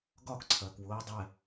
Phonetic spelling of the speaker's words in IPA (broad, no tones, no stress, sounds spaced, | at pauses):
ɡ ɒ k ǀʰ ɐː k w ʊː dˤ ɛ